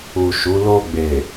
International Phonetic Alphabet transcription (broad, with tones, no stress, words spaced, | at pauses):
u˨ ʃu˨˦ lo˧ɡ͡be˨